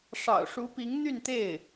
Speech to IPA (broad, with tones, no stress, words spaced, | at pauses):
ʂɑ̰˨˩ʊ̯ʂu˧˥pi˧˥ŋn̪y˥˧n t̪e˥˩ɪ̯